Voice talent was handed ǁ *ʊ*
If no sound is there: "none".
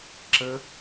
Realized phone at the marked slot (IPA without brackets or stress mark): ə